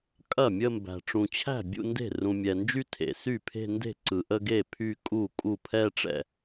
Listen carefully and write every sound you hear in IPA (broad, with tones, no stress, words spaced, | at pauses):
kʼɐ˥˩mʲə˥˧mbæ̤˨ ʈ͡ʂũ˨t͡ɕʰæ̤˥˩ bʲṵ˥˧nde̤˥˩ rũ˨mʲɛ˨nd͡ʒy˥˧ tʰḛ˨sy˥˩pʰe̤˥˧ nde̤˥˩ǀɯ˨ʔə˥˧ɡe˥˩ pʰy˥˧kʼu˥˩kʼu˥˩ pʰɛ˥˧ ʈ͡ʂɛ̰˥˩